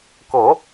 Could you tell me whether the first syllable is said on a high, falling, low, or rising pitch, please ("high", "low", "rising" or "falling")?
low